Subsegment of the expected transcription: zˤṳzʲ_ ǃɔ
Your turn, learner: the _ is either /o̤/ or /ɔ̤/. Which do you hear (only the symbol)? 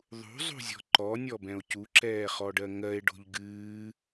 ɔ̤